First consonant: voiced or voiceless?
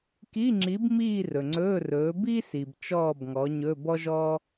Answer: voiceless